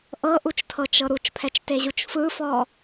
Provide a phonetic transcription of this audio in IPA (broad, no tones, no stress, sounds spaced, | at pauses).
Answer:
ʔ ɤ ʔ u t͡ʃ tʰ ɤ t͡ʃ ɤ ɾ u t͡ʃ pʰ ɛ t͡ʃ t e ʑ u t͡ʃ f ɯ f ɔ